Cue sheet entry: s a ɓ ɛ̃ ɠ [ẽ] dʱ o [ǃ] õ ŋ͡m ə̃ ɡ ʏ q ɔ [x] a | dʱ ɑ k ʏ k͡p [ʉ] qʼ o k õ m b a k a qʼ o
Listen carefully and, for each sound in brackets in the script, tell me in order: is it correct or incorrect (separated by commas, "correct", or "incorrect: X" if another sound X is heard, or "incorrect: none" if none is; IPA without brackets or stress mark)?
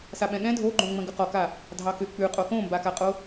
incorrect: ɛ̃, incorrect: ɡ͡ǃ, incorrect: k, correct